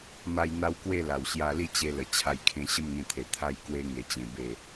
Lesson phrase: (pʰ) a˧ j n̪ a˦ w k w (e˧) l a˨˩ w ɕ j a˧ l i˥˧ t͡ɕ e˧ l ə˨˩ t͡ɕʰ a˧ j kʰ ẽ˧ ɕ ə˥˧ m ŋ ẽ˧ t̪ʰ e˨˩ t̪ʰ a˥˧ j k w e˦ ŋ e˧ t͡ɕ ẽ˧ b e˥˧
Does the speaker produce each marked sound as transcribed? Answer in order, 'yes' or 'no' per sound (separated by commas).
no, no